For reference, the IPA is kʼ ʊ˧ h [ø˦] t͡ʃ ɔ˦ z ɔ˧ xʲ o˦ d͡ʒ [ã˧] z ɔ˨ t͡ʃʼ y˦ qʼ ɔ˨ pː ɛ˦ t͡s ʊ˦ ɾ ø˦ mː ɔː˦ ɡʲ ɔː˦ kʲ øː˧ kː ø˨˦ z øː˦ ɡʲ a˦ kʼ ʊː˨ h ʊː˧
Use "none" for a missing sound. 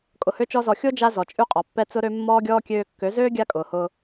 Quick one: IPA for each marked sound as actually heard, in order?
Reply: ø˦, a˧

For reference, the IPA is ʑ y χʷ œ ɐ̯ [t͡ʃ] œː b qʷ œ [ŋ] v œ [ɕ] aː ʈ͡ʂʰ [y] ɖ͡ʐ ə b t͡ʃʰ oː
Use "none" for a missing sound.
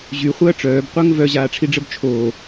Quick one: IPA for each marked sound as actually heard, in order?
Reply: ʈ͡ʂ, ŋ, ʑ, i

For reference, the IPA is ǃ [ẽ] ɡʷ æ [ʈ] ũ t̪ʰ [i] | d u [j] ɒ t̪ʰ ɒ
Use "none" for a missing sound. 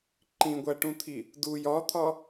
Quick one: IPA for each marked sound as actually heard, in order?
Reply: ĩ, ʈ, i, j

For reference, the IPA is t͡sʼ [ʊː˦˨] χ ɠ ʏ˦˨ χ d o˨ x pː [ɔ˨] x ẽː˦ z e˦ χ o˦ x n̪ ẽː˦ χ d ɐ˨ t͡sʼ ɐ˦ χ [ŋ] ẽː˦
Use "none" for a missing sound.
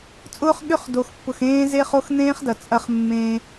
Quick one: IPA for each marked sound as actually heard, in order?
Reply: ʊː˦, ʊ˨, mː

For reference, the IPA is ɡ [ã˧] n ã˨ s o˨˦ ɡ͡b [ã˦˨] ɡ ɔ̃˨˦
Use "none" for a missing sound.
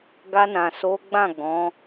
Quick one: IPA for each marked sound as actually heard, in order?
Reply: a˧, ã˦˨

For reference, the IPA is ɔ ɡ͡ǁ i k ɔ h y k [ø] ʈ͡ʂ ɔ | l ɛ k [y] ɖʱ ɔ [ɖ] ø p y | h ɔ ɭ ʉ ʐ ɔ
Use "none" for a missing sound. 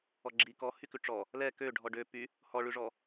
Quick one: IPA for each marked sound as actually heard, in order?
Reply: ʉ, ø, ɖ

